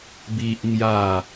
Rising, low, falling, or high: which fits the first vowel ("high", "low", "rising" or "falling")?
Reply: high